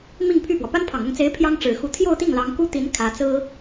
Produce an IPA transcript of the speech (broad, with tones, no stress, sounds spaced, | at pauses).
m i˥˧ ŋ pʰ y˥˩ p w ɔ˩ p a˥ n pʰ ɑ˨˩ ŋ ʊ˥˩ ŋ t͡s e˧˥ ɪ̯ pʰ j ɑ˥ ŋ ʈ͡ʂ ɻ̩˨˩ x u˧˥ t̪ʰ j o˥˧ ʊ̯ t̪ i˥˩ ŋ l ɑ˧˥ ŋ k u˥ t̪ i˧˥ n kʰ ä˧˥ t͡s ɹ̩˥